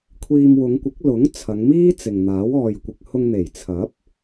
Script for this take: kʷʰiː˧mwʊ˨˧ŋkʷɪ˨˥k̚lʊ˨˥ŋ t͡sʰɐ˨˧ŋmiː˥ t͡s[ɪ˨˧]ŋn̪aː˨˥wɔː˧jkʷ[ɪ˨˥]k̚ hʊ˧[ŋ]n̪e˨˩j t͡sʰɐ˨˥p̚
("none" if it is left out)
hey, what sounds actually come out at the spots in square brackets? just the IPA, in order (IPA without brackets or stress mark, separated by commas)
ɪ˨, ɪ˧, ŋ